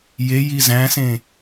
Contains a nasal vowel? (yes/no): yes